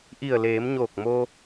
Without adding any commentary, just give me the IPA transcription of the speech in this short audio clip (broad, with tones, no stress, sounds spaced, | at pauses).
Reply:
ʔ i˧˩ ə̯ l eː˩˧ m ɲ oː˧˩ k̚ m o˧